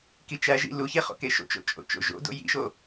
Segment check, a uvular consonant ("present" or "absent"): present